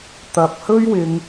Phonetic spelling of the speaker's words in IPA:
t̪ ɐ˨ p̚ h ɵ˥ ɥ w ɪ˧ ŋ

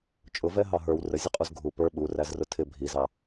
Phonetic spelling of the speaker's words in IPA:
t͡ʃʼ ʊ v ɛ ɦ ɑ ɦ ə˞ w r ə zʲ ə qʼ u z ɡʱ u p ə˞ ɓ u r æ z r ʊ tʰ ɪ bʱ i z ɑ

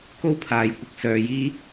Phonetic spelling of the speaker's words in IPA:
k o˥ w pʰ aː˨ j kʷ ɪ˨ k̚ s œː˨ j iː˧

